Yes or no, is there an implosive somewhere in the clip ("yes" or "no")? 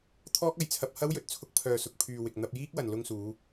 no